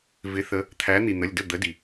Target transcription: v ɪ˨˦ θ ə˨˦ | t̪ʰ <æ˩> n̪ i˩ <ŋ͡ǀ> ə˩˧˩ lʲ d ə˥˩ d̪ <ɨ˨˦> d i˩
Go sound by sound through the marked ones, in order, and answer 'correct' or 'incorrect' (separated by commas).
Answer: incorrect, incorrect, incorrect